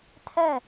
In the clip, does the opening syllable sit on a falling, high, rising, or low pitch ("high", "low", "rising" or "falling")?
falling